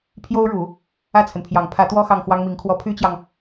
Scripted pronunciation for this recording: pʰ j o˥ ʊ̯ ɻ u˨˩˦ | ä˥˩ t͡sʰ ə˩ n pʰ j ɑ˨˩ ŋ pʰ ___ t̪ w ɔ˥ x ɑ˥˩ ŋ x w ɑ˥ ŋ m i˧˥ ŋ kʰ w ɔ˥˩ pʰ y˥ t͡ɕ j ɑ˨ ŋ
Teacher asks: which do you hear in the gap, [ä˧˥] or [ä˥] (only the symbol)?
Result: ä˧˥